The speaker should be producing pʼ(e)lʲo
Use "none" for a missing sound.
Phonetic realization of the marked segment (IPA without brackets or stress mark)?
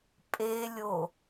e